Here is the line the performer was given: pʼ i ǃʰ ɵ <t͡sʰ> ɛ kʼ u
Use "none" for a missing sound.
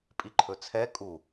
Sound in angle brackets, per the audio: t͡sʰ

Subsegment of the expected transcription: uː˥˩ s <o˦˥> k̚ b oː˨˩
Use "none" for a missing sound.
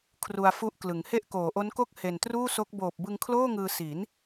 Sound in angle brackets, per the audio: o˦˥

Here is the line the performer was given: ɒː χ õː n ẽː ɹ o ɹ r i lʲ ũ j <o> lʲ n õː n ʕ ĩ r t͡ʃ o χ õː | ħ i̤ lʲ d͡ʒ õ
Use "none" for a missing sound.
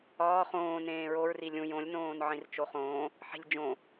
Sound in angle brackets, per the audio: õ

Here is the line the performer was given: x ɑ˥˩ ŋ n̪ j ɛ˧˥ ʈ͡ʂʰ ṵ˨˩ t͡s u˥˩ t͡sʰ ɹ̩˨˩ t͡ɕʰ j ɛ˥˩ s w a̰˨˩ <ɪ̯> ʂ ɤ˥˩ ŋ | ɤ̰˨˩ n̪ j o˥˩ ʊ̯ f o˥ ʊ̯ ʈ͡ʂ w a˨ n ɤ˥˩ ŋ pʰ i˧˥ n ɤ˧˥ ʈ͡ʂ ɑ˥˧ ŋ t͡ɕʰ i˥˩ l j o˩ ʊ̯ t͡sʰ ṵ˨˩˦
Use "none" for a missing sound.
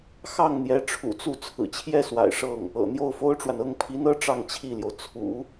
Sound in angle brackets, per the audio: ɪ̯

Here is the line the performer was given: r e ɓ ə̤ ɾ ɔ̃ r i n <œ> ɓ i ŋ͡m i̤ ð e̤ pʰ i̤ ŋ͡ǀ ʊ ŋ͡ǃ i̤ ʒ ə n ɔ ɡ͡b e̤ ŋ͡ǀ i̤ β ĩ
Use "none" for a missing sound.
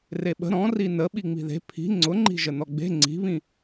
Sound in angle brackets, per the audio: ə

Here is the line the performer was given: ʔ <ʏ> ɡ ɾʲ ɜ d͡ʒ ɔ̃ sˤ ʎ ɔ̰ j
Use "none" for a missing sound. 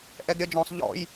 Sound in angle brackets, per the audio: ɛ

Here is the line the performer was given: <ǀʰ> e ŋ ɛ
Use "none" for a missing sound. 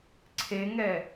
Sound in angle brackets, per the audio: ǀʰ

